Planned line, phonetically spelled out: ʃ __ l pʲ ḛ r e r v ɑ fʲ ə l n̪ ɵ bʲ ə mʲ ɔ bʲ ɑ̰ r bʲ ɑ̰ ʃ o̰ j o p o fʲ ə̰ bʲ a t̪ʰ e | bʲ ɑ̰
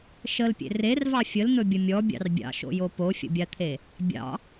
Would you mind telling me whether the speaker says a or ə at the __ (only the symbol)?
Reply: ə